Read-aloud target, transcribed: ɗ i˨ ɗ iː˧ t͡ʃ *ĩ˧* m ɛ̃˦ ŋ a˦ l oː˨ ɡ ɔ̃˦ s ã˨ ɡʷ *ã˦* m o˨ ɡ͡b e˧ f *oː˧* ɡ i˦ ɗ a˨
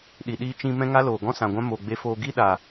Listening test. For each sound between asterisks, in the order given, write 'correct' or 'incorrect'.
correct, correct, correct

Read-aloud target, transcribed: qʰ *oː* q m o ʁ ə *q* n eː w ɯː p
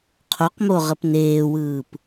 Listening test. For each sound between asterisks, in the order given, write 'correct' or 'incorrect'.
incorrect, incorrect

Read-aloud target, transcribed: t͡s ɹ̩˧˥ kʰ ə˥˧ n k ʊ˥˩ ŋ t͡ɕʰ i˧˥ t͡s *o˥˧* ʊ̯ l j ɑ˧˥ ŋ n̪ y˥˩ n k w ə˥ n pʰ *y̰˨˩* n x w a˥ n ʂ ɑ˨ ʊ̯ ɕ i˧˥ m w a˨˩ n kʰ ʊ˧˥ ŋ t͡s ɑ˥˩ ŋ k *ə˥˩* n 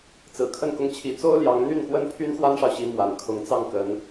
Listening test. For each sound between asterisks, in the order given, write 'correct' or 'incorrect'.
incorrect, incorrect, incorrect

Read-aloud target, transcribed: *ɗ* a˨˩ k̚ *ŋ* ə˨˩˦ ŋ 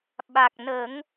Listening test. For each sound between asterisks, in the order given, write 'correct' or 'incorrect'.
incorrect, incorrect

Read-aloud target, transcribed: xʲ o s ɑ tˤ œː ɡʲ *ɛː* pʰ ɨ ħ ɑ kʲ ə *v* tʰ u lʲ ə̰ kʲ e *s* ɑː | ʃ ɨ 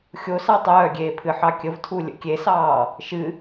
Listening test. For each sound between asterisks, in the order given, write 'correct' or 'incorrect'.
incorrect, correct, correct

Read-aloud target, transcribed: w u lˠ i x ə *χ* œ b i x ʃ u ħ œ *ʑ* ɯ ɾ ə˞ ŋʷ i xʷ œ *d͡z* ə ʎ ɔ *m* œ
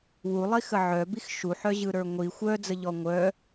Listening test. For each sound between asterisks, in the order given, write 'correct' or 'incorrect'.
incorrect, correct, correct, incorrect

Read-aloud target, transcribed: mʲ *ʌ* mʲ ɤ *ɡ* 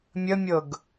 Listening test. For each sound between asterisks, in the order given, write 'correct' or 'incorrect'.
incorrect, correct

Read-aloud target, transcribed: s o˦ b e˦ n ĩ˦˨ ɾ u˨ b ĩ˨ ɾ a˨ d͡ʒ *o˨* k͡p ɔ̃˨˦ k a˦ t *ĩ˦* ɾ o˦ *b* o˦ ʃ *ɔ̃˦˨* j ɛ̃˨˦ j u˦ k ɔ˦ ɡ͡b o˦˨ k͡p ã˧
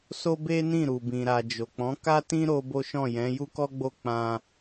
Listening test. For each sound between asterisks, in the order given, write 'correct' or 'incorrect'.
correct, correct, correct, correct

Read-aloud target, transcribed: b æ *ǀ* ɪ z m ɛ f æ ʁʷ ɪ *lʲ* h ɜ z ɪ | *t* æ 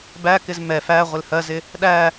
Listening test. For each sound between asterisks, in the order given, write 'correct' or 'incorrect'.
incorrect, incorrect, incorrect

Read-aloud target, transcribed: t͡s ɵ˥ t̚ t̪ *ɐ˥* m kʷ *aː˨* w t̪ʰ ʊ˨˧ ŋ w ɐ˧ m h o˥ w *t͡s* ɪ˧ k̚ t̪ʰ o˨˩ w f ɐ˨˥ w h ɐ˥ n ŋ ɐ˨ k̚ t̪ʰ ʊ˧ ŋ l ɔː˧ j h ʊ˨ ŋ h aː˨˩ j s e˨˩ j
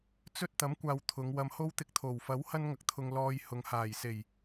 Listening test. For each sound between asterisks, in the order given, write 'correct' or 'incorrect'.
incorrect, correct, incorrect

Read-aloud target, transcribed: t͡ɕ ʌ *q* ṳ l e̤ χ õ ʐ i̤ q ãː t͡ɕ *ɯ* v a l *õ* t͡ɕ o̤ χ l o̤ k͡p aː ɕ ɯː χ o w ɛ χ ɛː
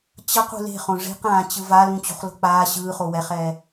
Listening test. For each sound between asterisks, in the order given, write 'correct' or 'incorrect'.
correct, correct, incorrect

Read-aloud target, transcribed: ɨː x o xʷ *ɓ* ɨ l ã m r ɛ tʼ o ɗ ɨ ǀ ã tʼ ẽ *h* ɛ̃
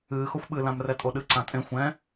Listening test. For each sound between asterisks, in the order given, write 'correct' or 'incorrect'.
correct, incorrect

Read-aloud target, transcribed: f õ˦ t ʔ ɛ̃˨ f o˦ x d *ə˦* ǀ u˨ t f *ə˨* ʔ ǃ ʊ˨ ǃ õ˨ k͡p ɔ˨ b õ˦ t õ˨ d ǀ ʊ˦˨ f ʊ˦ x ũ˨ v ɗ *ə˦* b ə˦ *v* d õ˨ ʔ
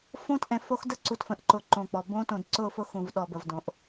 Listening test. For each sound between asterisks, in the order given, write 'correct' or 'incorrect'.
correct, incorrect, incorrect, correct

